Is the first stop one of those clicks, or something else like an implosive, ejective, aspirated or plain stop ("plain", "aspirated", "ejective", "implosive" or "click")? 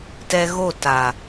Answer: plain